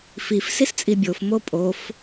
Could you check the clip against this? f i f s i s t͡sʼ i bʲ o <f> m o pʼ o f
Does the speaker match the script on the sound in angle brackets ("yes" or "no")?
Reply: yes